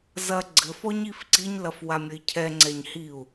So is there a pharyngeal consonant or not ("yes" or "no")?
no